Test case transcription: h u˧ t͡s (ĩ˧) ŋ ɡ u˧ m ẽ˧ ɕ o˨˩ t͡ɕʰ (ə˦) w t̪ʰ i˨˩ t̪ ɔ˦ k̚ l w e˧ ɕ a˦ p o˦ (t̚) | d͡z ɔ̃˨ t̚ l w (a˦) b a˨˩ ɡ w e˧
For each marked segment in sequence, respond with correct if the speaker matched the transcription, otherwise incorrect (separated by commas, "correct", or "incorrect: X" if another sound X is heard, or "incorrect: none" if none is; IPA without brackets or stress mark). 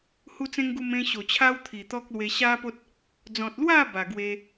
incorrect: ẽ˧, incorrect: a˦, correct, incorrect: a˥˧